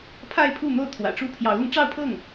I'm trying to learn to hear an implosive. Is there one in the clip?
no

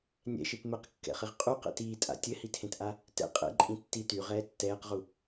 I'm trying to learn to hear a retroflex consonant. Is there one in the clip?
no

